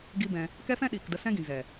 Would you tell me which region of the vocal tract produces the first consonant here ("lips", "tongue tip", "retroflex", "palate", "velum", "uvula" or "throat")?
velum